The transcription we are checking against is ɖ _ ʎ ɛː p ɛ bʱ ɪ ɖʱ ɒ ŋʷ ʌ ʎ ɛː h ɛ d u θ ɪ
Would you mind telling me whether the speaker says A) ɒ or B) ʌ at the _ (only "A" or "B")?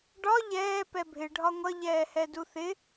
A